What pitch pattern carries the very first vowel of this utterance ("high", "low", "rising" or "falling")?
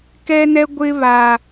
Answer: high